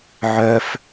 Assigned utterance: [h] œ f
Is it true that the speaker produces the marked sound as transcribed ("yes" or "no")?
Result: no